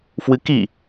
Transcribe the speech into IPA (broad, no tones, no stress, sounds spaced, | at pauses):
f w ɨ k i